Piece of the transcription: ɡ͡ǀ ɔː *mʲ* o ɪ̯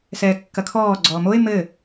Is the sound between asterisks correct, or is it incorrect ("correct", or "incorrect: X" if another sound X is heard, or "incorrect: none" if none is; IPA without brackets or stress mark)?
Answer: incorrect: m